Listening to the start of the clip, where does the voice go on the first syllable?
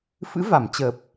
rising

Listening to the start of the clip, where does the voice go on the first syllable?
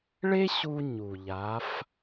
high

